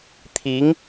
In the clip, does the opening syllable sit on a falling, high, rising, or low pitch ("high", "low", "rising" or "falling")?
rising